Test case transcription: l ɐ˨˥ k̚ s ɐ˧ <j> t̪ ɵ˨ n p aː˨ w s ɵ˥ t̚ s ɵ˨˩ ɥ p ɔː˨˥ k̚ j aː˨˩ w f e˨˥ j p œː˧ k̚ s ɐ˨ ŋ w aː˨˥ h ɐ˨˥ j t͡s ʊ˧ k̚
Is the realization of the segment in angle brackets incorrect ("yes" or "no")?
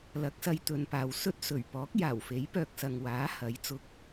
no